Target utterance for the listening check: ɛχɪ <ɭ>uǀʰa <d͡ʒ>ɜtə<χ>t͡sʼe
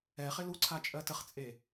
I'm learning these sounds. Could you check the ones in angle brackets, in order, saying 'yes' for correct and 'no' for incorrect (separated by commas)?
no, no, yes